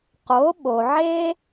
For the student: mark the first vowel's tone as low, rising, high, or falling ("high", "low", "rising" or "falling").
rising